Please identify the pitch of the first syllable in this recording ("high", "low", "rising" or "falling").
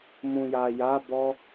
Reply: low